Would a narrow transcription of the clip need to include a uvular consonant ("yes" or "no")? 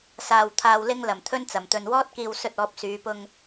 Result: no